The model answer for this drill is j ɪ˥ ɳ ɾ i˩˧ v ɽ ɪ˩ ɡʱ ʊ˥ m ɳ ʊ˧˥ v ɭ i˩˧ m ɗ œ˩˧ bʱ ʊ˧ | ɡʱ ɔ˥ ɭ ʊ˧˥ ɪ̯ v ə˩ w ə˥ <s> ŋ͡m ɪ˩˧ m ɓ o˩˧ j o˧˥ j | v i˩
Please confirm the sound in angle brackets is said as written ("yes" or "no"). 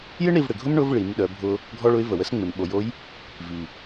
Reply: yes